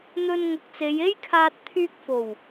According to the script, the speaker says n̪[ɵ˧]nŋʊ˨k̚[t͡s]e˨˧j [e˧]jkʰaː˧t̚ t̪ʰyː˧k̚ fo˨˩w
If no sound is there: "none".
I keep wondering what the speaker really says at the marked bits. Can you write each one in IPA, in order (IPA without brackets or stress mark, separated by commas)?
ɵ˧, t͡s, e˥